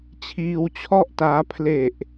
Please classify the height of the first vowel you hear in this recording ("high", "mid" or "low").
high